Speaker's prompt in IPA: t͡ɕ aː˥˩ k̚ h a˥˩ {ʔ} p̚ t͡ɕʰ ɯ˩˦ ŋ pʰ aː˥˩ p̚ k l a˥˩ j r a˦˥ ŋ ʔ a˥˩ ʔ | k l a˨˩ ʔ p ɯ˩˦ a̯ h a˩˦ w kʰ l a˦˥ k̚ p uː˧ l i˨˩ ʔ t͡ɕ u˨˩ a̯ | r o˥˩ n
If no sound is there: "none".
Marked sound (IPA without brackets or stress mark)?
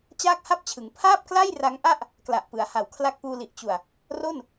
none